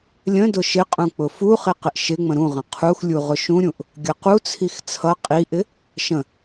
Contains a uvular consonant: yes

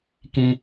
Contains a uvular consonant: no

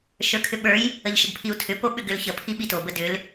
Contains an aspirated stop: yes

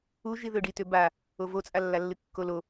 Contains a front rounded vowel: yes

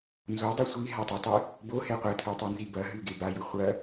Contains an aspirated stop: yes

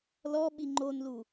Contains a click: yes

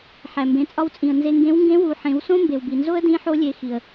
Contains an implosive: no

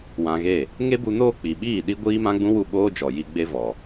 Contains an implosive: yes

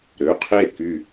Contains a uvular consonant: yes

